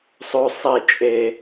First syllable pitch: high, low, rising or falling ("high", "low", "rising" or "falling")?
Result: high